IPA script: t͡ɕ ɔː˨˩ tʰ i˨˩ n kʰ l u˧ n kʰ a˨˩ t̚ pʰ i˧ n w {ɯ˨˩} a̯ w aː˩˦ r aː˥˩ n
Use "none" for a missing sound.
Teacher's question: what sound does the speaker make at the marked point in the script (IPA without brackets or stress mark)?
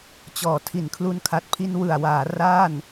ɯ˨˩